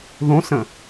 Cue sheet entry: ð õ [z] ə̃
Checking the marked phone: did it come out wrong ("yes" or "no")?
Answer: yes